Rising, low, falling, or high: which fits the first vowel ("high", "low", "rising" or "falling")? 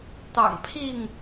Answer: low